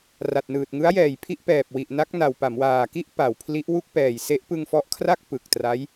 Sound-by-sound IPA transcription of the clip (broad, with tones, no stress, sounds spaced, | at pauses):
r a˨˩ t̚ n ɯː˨˩ t̚ ŋ ɯ˦˥ a̯ j ɛː˨˩ j pʰ i˥˩ ʔ p ɛː˨˩ p̚ w i˨˩ ʔ n a˦˥ k̚ n a˨˩ w p a˩˦ m w aː˨˩ k i˥˩ ʔ p a˨˩ w pʰ l i˦˥ ʔ w u˥˩ k̚ p ɛː˨˩ j s e˦˥ ʔ p ɯ˧ ŋ f ɔ˦˥ ʔ kʰ r a˥˩ k̚ p ɯ˨˩ k̚ t r a˦˥ j